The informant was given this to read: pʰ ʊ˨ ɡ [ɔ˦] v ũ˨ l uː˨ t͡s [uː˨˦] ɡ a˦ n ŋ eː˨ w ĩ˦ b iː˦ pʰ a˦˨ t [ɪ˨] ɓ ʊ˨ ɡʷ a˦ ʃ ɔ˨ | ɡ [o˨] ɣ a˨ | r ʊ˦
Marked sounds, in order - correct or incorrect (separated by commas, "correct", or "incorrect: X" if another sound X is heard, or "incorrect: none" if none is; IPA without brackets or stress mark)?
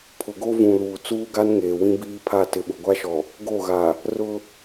incorrect: o˦, incorrect: uː˦, correct, incorrect: o˦˨